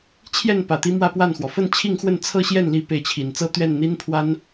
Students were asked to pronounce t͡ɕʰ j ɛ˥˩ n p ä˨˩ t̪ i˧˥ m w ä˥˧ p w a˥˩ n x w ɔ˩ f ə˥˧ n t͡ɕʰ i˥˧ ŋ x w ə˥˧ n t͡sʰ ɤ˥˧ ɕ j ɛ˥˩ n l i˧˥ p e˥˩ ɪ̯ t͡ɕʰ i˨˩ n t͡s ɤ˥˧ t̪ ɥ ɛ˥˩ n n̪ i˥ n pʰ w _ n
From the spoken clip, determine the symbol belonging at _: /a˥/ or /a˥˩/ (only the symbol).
a˥